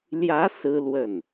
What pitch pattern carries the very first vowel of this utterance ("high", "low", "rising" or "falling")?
rising